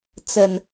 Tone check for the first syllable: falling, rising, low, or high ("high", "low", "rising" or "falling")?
low